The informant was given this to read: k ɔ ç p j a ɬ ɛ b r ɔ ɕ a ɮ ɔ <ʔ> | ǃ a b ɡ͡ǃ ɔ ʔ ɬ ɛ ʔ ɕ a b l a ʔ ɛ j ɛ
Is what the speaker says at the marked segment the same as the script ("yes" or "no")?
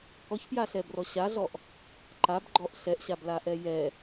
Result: yes